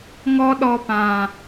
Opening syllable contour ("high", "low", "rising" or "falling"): high